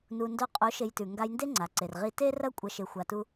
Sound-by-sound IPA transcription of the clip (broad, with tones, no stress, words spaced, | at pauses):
nu˨ndo˧qʼo˨˦ ʃe˧jtʉ˨ ŋɡa˧jnde˦ ŋ͡ǀa˨ǀe˨rʁi˦ te˦rɐ˦ kʷʼɐ˧ ʃe˧xʷa˧tu˦